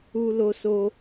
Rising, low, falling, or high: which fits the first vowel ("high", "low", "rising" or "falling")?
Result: high